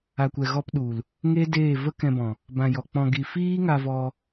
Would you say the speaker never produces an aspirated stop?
yes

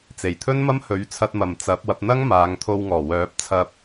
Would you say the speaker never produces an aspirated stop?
no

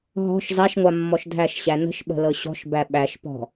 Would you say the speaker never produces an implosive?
no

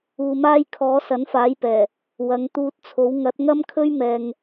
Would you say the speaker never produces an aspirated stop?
no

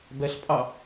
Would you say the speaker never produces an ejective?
no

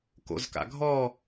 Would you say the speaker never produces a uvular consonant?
yes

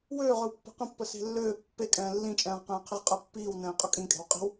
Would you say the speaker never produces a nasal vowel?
no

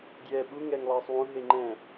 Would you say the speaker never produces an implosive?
no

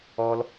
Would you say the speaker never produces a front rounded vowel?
yes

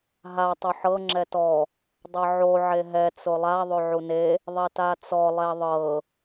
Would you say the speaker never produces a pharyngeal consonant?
no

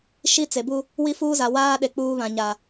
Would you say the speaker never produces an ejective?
yes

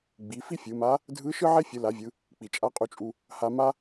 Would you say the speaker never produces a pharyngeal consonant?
no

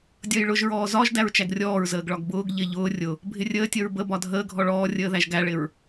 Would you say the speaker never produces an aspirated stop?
yes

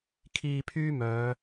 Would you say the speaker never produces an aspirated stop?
no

